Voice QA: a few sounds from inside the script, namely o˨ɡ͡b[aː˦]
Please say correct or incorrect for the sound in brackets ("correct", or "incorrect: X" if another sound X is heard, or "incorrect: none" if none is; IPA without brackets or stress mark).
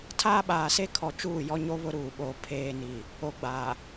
incorrect: aː˨